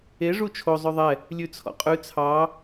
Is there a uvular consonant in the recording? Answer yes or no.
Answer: yes